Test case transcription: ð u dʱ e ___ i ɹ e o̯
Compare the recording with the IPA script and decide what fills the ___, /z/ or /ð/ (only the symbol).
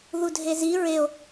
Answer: z